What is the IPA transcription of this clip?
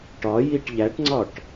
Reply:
ʈ ɒ j i ʈ ʎ æ ʈ ŋ͡ǀ ɒ ʈ

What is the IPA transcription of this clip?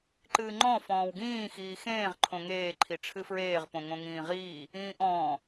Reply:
ǃ ɨː ŋ͡ǃ ɔ̃ f ɔ̃ː w ɡ ĩː x iː x ẽː ʁ ǃʰ õ ŋ eː ǃʰ i ʈ͡ʂʰ ɨ f ɹ eː ʁ p õ ŋ õ ŋ ĩː ʁ iː | ĩː ʔ ɔ̃ː

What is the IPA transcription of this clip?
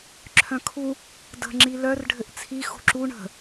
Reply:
ǁʰ œ̃ kʰ u | d ə̤ ŋ͡ǁ i l œ r ɖʱ ɘ ʔ t͡sʰ i x ṳ ǁ u ɳ ə̤

